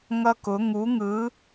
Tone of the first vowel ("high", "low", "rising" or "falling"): high